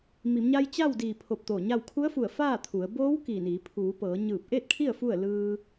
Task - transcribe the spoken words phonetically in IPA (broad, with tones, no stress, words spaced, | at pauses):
mi˩˧mɲa˧j t͡ɕa˥˨wdiː˧˩pʰo˧˩p̚ t̪oː˧˩ɲa˥˨w kʰu˧˥ə̯fu˧˩ə̯ faː˥˨t̪ʰu˩˧ə̯ boː˧˥w kiː˧˩niː˩˧ pʰuː˩˧ pɤː˩˧ɲɯː˧˩p̚ʔeː˥˨t̚kʰi˥˨ə̯ fu˥˨ə̯ lɯː˧